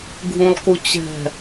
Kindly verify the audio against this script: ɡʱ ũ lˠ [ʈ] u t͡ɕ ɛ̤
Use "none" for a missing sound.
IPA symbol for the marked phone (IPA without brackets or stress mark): k